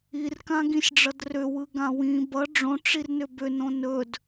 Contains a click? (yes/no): no